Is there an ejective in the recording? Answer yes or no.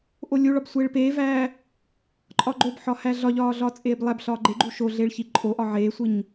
yes